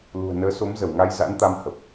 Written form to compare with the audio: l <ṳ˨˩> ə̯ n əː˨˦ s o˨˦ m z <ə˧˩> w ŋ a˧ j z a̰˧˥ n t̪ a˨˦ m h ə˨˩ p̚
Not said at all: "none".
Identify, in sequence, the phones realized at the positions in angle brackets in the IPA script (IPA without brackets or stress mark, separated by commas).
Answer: ṳ˨˩, ə˧˩